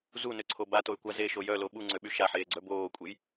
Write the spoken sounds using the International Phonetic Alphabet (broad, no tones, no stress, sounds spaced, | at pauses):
z u n ø ǀʰ o b a t o y̯ kʷ a z e ʃ o j œ l o ɓ u ŋ͡ǀ ø ɓ y ʃ a ħ eː ɡ͡ǀ œ b oː kʷʼ e j